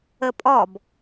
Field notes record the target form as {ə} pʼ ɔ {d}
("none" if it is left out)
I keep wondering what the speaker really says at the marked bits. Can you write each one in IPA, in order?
ə, b

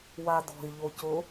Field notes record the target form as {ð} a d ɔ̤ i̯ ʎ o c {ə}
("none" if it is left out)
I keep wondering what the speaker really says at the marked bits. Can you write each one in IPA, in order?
w, ʊ

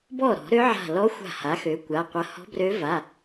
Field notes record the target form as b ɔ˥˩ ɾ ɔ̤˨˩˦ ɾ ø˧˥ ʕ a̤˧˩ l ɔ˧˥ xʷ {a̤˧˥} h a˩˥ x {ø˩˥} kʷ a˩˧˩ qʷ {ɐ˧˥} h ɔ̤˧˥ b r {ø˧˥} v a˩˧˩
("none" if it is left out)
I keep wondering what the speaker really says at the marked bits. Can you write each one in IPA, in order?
a̤˧˩, ø˩˥, ɐ˧˥, ø˧˥

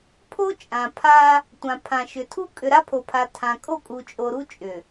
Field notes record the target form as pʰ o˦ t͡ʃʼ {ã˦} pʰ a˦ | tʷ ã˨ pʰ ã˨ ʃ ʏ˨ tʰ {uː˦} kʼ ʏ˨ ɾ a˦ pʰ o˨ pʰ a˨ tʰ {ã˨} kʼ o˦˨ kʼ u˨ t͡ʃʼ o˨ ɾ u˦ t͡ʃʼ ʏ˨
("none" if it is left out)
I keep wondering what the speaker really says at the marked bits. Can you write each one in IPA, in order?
ã˨, u˦, ã˨

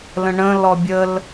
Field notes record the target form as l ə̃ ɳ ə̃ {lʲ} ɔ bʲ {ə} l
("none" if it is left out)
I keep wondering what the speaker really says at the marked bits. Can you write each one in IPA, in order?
l, ə

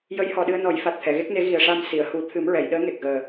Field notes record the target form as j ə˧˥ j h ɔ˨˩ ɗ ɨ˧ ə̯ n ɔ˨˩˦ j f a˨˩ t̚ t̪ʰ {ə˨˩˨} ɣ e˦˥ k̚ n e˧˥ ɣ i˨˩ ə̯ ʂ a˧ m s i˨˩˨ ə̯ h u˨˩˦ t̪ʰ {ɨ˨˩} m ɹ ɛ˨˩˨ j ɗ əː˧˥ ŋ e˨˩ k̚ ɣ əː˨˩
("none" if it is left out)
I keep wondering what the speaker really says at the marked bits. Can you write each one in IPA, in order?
ɛ˨˩˨, ɨ˨˩˦

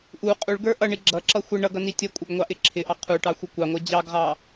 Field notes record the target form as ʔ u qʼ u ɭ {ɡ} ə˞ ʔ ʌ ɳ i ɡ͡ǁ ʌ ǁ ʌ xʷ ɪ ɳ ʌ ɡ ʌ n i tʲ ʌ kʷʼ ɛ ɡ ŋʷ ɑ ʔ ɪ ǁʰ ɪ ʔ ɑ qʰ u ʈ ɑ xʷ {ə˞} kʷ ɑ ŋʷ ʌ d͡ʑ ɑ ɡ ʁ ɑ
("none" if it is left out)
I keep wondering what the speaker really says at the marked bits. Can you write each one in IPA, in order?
ɡ, ʌ

